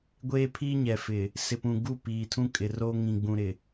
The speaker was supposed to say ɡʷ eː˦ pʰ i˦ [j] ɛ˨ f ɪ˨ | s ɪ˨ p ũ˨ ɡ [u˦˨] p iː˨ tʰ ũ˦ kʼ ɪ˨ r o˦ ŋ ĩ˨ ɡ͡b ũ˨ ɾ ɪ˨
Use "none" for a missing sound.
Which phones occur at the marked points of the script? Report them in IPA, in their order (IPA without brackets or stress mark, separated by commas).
ɲ, u˦˨